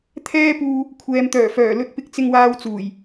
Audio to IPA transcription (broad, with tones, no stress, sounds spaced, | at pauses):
t̪ʰ ɛː˥ p uː˧ | kʷʰ ɛː˨ m t̪ œː˨˩ f œː˨˩ l ɵ˧ t̚ p ɪ˧ k̚ t͡s ɪ˧ ŋ w aː˧ w t͡s uː˨˩ j